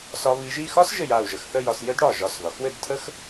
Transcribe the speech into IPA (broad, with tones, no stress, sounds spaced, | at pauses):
s ɒ˧ β i˧ ʒ i˥˧ x ɒ˥ s ʒ ɘ˧˩ j a˧˩ u̯ ʒ ə˧˩ x θ ə˥˧ j ɒ˧ s j ɘ˥ d ɽ ɒ˧˩ ʒ ɒ˧˩ s ð ɒ˩˧ x w ɘ˥˧ d tʰ ə˥ x